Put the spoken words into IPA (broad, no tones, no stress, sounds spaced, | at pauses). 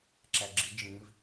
ǁ æ ɡ͡ǁ i d͡ʒ ĩ v